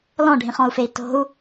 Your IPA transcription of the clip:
l ɔ̃ ɖʱ ĩ χ ɔ̃ u̯ f e i̯ t o̤ u̯

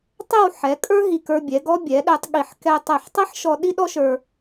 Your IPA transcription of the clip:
tˤ ɛ˥˧ w ħ ɛ˩˧ kʼ ə˞˥ ɦ i˧˩ k ə˞˧ bʲ ɛ˩˧ ɡ ɔ˥ bʲ ɛ˩˧ ɗ ɛ˧ tˤ ɠ i˧˩ ħ k ɛ˧ tˤ ɛ˧˩ ħ tˤ i˥ ħ ʃ ɔ˧ ɗ i˥ ɗ ɔ˥ ʃ ə˞˧

